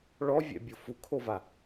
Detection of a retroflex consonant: present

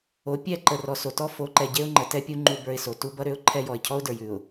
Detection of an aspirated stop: present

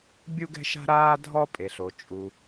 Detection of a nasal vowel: absent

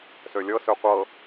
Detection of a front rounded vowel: present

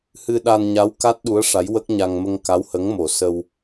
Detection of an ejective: absent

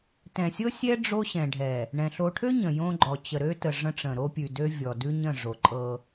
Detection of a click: present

